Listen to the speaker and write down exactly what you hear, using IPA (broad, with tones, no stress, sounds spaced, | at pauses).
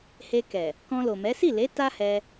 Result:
h e˧ k ɛ˨ | k ɔ̃˧ l o˨ m ɛ˨˦ s i˦˨ l e˨˦ t a˦ h ɛ˧